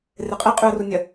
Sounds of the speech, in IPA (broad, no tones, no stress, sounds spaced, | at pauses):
r e qʼ ɛ qʼ ʉ ə̯ r u nʲ ɐ